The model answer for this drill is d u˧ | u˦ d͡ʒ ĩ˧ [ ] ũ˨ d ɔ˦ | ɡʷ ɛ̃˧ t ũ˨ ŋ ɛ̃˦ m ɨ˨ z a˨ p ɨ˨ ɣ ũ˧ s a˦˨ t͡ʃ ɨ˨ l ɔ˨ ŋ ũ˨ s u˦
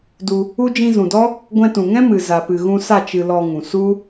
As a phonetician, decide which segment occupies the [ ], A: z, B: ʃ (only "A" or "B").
A